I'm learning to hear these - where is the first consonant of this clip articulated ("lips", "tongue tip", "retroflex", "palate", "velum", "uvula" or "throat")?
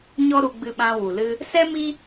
palate